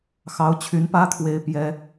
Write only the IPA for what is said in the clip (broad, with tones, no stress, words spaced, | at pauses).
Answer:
xɑ˧˥ʊ̯ t͡ɕʰy˧˥npä˥t̪ʰwe˧˥ɪ̯ pjɛ˥